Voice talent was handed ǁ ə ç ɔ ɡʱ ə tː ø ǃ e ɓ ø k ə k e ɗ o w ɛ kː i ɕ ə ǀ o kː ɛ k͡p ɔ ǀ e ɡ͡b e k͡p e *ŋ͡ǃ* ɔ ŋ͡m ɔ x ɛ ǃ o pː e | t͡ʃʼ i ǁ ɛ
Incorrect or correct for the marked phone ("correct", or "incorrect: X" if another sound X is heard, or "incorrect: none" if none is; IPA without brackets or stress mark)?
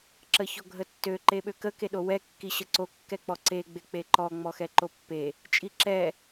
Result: incorrect: ǃ